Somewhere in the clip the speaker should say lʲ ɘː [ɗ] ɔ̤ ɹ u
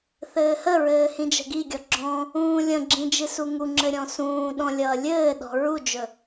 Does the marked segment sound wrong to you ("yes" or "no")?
no